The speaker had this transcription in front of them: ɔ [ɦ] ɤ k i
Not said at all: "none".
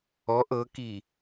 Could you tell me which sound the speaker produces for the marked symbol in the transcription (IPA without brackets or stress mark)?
ʔ